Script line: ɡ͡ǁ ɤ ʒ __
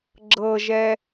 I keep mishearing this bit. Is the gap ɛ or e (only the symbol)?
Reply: ɛ